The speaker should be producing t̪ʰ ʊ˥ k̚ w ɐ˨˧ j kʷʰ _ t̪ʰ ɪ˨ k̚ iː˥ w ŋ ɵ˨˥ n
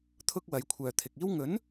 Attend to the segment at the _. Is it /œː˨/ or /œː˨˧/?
œː˨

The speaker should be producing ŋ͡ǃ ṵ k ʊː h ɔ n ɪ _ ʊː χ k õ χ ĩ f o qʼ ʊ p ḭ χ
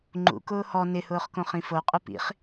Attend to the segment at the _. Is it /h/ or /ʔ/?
h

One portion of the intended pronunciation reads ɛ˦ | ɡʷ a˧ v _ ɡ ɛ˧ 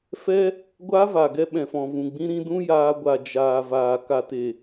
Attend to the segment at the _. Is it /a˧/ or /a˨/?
a˨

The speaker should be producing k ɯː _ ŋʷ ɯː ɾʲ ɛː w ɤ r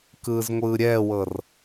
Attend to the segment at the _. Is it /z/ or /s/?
z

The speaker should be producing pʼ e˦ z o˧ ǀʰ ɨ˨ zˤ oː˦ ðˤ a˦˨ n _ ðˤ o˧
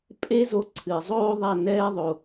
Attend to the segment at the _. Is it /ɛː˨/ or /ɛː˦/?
ɛː˦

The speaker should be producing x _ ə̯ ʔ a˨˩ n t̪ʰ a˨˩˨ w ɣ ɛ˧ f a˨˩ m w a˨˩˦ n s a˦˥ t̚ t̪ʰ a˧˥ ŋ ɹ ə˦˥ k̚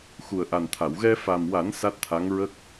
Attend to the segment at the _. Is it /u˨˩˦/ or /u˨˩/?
u˨˩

